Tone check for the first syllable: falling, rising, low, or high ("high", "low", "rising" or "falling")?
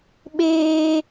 high